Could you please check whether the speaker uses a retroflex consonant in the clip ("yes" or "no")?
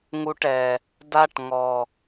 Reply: yes